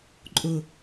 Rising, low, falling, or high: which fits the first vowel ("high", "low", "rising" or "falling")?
low